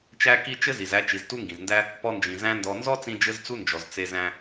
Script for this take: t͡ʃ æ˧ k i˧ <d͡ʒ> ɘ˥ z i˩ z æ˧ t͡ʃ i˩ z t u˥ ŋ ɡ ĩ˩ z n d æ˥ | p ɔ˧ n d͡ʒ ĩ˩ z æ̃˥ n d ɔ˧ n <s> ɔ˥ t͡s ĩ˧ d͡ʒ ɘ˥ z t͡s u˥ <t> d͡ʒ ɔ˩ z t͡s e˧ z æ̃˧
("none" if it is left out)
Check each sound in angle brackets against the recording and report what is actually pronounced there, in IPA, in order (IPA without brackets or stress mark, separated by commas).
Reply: t͡ʃ, z, n